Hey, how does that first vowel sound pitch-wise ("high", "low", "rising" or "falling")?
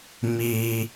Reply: high